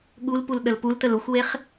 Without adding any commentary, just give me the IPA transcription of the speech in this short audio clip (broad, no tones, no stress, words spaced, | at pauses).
ɠulpul ɗəlpultəl uxʷweχ